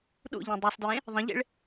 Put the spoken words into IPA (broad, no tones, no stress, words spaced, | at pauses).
ɗṵʎẽ dˤusˤdɹẽ | ðˤə̃ʎḛɭ